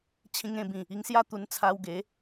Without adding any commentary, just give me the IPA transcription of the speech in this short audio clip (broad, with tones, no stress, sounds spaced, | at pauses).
t͡ɕʰ ĩ˧ ŋ ẽ˧ b ĩ˨˩ | i˧ ŋ s j a˥˧ t̪ u˧ n t͡sʰ a˧ w ɡ e˨˦